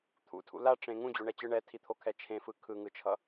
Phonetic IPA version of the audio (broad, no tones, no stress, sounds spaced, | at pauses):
t̪ʰ ṵ tʰ ṵ l a ʈ͡ʂ ẽ ŋ ũ d͡ʑ o ɳ ɛ t͡ɕ ɯ ɳ ɛ tʰ i t̪ʰ o kʰ ɛ t͡ʃʰ ẽ f ɯ kʰ ɯ ŋ ɯ t͡ʃʰ ʌ